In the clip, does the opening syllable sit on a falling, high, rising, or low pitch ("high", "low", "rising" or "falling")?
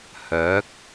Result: rising